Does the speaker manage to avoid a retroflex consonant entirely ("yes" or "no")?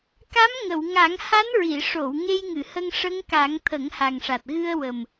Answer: no